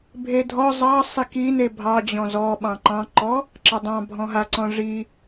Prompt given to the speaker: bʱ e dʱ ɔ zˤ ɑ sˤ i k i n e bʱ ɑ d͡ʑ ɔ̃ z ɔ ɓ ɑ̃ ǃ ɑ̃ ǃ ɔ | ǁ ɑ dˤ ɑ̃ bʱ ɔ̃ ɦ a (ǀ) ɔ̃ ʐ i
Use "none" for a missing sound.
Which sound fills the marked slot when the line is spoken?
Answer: ǀ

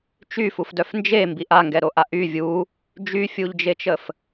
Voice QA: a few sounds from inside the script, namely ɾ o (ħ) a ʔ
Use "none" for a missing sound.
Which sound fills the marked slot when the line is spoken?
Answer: ʔ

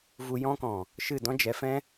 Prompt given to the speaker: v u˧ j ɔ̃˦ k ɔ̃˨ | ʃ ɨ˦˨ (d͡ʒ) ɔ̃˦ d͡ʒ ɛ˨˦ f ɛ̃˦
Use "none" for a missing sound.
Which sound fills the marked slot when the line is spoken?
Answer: d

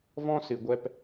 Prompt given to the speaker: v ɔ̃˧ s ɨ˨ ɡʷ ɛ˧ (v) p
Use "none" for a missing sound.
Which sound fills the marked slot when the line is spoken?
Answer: none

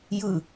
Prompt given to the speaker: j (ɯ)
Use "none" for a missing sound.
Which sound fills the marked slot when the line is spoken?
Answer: ɯ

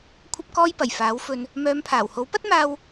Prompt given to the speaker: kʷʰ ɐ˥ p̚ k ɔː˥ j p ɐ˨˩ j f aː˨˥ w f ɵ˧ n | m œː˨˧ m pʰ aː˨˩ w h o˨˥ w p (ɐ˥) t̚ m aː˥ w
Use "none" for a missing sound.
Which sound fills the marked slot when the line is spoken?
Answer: ɐ˥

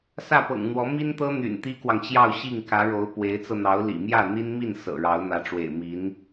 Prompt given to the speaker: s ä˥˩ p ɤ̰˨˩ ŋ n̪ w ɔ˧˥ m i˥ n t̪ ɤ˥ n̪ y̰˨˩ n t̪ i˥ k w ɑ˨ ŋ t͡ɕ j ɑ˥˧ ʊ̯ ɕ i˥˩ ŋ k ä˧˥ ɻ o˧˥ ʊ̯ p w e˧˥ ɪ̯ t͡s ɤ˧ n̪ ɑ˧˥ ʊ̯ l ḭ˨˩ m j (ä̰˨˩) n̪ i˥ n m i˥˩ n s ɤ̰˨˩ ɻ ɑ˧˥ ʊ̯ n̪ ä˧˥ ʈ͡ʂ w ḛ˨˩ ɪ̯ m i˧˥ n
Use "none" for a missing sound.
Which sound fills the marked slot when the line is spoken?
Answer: ä˥˩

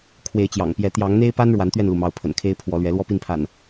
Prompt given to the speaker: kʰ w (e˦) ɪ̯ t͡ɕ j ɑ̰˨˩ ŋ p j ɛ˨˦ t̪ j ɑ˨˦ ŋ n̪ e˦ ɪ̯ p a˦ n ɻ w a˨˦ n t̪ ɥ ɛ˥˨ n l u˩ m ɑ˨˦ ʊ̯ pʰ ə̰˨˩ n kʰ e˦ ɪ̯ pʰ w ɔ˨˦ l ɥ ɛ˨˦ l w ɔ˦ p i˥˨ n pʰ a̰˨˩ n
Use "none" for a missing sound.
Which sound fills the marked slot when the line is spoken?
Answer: e˨˦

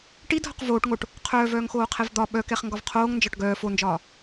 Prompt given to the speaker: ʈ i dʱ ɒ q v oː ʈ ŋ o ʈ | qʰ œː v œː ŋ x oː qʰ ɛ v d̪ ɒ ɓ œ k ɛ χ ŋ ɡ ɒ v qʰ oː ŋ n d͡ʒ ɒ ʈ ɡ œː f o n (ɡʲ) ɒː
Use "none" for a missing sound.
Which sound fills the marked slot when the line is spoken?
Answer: d͡ʒ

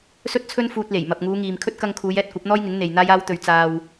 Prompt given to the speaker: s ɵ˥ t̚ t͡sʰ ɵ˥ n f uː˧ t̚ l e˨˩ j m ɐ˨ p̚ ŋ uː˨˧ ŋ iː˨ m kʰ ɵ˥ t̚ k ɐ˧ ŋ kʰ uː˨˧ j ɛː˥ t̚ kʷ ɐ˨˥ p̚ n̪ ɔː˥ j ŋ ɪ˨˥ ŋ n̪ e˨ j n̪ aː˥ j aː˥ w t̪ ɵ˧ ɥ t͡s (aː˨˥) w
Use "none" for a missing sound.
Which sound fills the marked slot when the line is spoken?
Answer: aː˧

